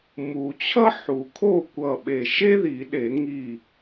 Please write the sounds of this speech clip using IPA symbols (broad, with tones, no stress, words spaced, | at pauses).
mu˨˩˦t͡ɕʰʌ˥ ħu˨˩˦ kʰo˥˩kʷʌ˧˩ ɓe˧˩ʃe˥ði˨˩˦ɗe˨˩˦ ŋi˧˩